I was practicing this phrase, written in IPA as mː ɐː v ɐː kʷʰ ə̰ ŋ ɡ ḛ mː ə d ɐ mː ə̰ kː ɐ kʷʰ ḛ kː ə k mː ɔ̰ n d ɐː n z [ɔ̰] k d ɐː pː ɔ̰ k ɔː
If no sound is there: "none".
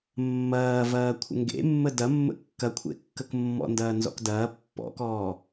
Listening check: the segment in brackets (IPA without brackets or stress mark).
ɔ̰